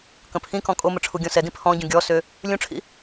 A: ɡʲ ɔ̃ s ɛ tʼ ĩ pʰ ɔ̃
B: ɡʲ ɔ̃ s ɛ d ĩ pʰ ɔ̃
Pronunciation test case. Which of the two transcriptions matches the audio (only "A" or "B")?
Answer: B